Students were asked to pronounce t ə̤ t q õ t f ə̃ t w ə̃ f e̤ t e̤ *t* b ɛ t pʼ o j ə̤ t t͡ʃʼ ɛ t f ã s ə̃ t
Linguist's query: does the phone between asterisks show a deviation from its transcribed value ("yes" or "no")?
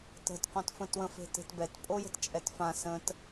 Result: no